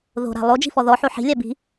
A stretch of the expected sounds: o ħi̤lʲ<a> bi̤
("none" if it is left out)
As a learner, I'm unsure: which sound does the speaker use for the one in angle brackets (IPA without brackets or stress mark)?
a